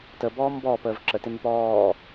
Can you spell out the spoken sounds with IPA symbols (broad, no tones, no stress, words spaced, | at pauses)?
təbɔːm bɔːpəːv ǁətemʉp ɔː